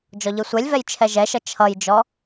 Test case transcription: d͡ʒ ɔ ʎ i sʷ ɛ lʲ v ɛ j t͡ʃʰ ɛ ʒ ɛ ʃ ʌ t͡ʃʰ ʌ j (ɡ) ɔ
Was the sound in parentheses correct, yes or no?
no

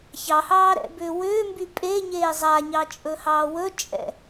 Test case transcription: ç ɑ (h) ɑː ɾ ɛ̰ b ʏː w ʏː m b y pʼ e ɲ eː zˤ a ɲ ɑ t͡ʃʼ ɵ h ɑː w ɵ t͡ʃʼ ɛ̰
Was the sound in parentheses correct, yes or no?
yes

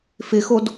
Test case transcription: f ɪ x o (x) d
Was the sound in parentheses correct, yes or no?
no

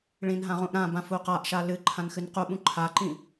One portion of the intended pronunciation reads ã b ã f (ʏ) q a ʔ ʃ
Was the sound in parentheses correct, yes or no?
no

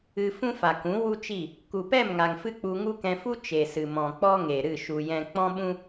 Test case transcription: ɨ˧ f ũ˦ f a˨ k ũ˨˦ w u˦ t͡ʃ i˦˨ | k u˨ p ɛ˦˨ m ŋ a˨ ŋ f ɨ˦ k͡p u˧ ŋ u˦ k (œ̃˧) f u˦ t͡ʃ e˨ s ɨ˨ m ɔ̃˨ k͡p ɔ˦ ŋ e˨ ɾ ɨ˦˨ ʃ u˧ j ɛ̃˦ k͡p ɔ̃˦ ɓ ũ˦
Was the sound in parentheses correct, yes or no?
no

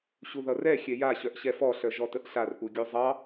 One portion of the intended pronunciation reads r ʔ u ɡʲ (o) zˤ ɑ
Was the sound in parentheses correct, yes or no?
yes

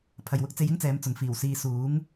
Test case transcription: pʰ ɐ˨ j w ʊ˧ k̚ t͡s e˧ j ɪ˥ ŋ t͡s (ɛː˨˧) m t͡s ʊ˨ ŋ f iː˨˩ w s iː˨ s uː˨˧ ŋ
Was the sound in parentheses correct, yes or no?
yes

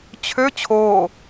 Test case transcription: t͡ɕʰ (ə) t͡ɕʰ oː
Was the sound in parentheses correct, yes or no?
no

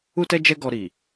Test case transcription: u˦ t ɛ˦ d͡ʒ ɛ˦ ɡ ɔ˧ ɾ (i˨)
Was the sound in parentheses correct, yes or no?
yes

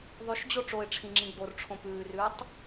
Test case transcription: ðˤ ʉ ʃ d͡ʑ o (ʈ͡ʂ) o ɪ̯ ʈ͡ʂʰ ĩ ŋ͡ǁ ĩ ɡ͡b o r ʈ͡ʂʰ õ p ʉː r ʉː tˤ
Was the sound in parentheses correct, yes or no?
yes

